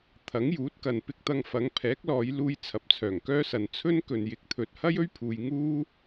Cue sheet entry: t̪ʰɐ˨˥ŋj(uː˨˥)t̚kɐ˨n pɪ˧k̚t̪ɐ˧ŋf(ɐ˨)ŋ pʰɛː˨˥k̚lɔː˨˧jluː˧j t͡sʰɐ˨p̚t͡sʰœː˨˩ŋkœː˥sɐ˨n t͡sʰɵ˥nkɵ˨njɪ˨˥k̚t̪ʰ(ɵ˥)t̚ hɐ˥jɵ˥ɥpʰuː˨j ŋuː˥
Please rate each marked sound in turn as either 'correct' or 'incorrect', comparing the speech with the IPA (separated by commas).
correct, incorrect, incorrect